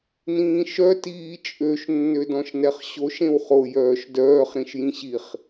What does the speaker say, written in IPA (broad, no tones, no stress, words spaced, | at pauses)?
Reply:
nĩːʃœ tiːt͡ʃʼøʃ nːødɔ̃ʃnɛχɕoʃ ẽwχo jœːʃdœːχ ɾĩʃjĩɕiχ